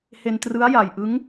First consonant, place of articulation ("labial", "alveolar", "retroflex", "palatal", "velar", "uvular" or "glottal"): glottal